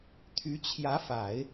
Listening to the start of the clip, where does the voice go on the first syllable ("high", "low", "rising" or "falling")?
rising